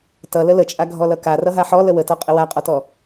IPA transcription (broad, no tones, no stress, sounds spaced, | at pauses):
t ʌ l ə l ə t͡ʃʼ a ɡʱ ɔ l ʌ k a r ʌ ɦ a ħ ɔ l ə w ə t ɔ qʼ ə w a qʼ ɔ t ɔ